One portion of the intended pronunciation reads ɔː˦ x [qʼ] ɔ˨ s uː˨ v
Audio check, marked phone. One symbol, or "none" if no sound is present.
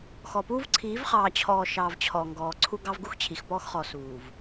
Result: χ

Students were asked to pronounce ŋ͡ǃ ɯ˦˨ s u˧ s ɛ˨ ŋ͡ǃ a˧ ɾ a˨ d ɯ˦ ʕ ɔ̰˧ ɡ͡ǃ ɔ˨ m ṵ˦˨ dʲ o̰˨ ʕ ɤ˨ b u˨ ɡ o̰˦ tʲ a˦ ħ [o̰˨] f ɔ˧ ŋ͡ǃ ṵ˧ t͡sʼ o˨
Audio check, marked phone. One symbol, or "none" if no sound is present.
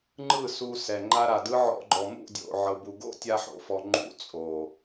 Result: o̰˨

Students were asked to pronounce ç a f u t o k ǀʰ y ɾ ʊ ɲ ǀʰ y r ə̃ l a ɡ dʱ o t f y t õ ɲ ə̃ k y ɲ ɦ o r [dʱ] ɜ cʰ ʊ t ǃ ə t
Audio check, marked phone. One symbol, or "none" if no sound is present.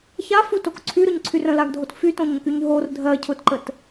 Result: dʱ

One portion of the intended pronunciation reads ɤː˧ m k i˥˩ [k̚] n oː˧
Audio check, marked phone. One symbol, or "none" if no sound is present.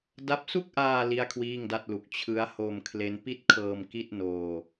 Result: t̚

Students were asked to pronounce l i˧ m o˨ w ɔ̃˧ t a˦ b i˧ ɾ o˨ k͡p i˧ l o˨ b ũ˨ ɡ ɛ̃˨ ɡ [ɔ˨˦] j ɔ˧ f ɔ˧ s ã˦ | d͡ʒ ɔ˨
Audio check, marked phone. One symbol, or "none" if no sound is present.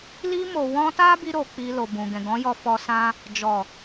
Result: ɔ̃˨˦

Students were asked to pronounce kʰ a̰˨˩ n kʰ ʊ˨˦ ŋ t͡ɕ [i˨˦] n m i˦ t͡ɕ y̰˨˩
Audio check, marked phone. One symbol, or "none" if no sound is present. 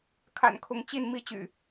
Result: i˥˨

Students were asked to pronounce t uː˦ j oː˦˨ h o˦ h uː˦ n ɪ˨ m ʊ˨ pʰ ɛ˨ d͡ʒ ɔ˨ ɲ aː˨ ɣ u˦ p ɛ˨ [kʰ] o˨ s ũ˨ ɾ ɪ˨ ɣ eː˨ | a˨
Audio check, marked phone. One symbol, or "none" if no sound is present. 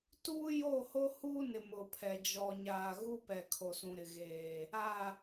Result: kʰ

